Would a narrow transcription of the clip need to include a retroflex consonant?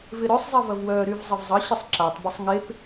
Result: no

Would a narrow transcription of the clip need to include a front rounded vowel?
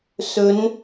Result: no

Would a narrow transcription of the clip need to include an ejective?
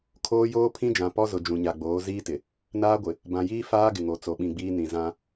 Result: no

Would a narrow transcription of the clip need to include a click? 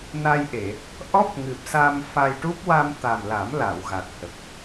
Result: no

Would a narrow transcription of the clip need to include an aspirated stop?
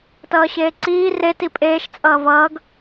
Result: no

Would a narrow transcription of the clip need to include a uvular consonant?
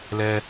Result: no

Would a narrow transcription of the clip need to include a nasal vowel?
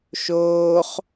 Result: no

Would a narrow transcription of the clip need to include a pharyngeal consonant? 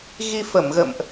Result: no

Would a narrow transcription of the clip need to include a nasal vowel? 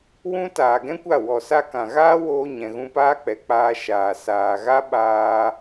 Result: yes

